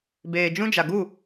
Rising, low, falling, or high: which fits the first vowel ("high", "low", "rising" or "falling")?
low